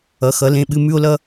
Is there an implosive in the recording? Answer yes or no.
yes